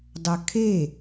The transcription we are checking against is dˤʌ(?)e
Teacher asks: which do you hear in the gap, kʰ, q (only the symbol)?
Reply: kʰ